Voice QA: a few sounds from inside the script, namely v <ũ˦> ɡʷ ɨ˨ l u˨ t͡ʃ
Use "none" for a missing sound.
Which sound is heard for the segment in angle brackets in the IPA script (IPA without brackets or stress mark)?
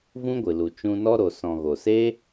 ũ˦